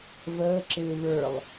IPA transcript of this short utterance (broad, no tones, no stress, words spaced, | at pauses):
vəːǁɪː βə˞lˠ